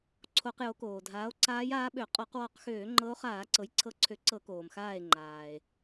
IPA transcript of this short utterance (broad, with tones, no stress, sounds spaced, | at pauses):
ǀʰ o˧˩˧ q j o˩˥ k oː˩ dʱ aː˩˥ o̯ ǀ aː˧˥ j aː˧˥ ɓ ø˧˩˧ qʼ ɔ˧˩˧ q w ɔ˧˩˧ q x øː˧˩˧ ŋ͡ǃ ɤ˧˥ o̯ χ aː˧˩˧ ǀ ɤ˩˥ j ǀʰ ɤ˧˩˧ ǀʰ ø˩˥ ǀ ɤ˧˩˧ k oː˩ m x aː˧˩ e̯ ŋ͡ǃ aː˩ e̯